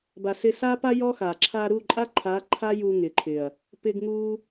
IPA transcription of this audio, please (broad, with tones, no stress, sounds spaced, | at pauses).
b a˨ s ɪ˧ s a˦ p a˦ j ɔ˦ x a˨ ǁʰ a˧ ɾ u˦˨ ǃʼ a˦ ǃʰ a˨˦ ǃʰ a˦ j u˧ ŋ ɪ˨ ǃʰ ɪ˨ ɐ̯ | p ɪ˧ ɡ ŋ u˦